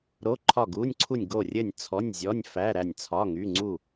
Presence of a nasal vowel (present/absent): absent